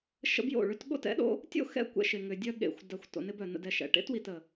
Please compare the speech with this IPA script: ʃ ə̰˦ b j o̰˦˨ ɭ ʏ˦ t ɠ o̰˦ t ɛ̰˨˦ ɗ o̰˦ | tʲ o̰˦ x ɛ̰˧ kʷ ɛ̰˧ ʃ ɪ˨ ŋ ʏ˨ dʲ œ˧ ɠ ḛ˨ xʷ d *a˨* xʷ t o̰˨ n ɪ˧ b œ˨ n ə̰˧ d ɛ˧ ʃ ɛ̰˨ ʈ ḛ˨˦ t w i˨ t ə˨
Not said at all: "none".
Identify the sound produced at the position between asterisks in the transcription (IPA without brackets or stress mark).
a˨